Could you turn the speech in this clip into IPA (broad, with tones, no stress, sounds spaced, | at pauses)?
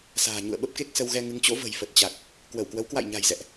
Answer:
s a̤ː˨˩ ɲ ṵ˧˨ ə̯ ɓ ə˦˥ p̚ k e˦˥ k̚ s ə˧ w ɣ ɛ˧ ŋ ɨ˨˦ ŋ t͡ɕ o̰˧˥ v ə̤˨˩ j f ə˨˩ t̚ t͡ɕ a˨˩ k̚ | k w ə˧˩ w k w ə˨˦ w k w a̰˧˨ j ɲ a̤˨˩ j z ɛ̰˧˨ ʔ